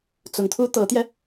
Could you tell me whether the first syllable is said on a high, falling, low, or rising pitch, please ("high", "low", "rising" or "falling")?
rising